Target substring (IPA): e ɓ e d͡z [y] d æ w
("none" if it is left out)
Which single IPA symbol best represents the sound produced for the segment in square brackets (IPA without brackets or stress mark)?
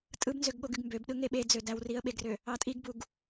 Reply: ø